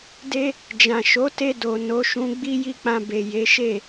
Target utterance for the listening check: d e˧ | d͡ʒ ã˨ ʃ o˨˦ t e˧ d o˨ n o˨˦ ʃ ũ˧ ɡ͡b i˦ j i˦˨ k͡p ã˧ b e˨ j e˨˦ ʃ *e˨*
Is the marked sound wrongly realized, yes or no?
yes